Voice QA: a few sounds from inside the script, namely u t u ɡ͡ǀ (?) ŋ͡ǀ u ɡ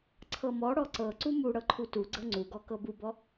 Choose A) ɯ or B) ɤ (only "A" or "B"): B